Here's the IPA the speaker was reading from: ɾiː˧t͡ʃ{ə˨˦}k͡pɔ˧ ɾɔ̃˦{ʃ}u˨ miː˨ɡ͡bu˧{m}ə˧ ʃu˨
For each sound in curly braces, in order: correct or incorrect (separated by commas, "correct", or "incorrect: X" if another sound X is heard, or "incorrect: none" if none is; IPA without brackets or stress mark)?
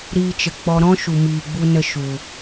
incorrect: ə˨, correct, incorrect: n